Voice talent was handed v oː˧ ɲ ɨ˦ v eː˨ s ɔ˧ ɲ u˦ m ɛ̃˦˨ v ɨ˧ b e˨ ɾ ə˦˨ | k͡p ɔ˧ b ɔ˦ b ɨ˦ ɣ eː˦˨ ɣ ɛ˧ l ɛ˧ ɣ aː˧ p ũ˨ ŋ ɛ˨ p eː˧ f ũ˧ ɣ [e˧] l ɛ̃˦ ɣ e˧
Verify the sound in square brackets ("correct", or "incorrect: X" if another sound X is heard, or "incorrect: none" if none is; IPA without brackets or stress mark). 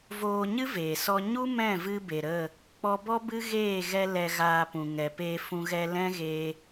incorrect: ɛ˧